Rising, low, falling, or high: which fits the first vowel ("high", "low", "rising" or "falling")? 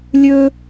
high